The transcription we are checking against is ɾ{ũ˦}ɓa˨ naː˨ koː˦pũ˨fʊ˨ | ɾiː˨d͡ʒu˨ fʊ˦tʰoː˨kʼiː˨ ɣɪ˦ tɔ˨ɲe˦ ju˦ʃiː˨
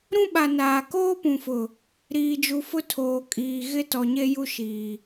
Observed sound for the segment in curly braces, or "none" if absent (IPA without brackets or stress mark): ũ˦